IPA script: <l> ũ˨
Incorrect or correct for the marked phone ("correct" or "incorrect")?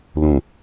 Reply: correct